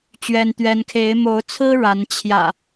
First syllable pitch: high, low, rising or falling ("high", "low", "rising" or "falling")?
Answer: high